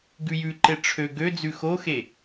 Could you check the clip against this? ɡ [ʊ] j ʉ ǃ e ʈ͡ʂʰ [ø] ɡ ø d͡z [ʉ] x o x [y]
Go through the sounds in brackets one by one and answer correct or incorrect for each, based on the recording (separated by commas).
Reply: incorrect, correct, correct, incorrect